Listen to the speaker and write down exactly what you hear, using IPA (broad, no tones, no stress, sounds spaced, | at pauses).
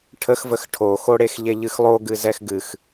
ʈʰ ə x v ə x ʈʰ o x o ɽ e x ʎ e ʎ ɨ x lˠ o ɡ ɨ z ɛ x ɡ ɨ x